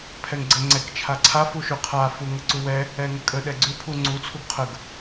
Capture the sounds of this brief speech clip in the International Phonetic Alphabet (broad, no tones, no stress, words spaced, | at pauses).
pʰɛŋɡ͡ǀə ŋ͡ǀɛk t͡ʃʰaǀʰaf uʃʉqʰa fuŋəǀuwɛ | ɛŋəkʼə ɗɛɡ͡ǀʉ pʰuŋ͡ǀu t͡sʰuɡqʰəɡ